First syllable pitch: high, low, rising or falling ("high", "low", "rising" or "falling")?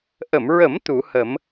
low